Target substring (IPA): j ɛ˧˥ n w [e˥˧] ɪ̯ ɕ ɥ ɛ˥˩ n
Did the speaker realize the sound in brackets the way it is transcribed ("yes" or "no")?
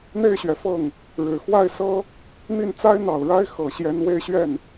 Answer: yes